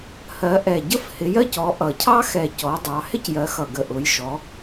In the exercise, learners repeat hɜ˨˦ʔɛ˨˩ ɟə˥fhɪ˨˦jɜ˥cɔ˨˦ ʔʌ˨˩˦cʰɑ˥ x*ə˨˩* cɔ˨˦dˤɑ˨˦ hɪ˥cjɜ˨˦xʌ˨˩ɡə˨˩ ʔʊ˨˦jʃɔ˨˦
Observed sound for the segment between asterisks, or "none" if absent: ɛ˨˩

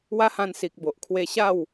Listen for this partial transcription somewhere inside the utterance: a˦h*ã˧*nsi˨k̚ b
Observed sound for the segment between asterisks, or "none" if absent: ã˧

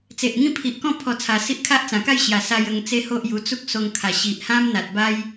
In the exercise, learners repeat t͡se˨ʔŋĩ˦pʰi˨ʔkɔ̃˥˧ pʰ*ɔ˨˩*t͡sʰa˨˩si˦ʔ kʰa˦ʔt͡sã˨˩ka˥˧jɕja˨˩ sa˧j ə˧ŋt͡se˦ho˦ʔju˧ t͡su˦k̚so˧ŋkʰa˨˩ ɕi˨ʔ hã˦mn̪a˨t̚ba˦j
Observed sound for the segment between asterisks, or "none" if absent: ɔ˧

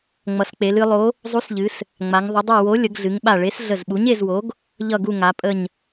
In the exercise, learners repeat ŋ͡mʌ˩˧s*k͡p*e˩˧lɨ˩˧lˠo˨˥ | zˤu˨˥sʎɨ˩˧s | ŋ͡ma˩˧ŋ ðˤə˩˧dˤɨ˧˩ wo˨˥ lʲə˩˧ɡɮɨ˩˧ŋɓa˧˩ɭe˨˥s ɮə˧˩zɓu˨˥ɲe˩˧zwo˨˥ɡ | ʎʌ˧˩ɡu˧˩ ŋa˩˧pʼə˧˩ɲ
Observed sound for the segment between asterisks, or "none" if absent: k͡p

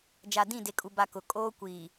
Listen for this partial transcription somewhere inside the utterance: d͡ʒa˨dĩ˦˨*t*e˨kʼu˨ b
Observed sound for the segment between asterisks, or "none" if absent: d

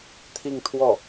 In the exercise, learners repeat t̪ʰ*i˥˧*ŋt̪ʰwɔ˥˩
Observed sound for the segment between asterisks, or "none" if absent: i˥˧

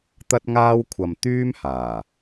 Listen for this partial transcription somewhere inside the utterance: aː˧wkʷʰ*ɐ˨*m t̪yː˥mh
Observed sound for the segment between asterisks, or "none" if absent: ɐ˨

